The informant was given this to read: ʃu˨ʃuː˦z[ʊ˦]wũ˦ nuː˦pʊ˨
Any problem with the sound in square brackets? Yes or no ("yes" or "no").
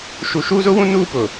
no